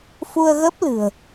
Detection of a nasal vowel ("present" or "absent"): absent